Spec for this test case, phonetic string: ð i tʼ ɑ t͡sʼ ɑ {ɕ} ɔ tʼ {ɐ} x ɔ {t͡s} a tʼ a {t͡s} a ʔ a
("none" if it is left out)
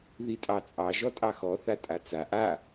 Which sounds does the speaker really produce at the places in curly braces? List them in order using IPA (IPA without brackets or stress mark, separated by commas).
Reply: ʒ, ɑ, θ, t͡s